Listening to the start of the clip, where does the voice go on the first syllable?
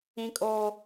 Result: high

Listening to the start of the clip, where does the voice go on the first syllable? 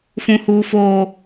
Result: high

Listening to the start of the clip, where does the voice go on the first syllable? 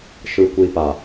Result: low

